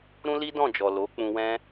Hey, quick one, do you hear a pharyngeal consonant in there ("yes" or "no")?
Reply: no